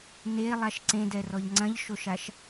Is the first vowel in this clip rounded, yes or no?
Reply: no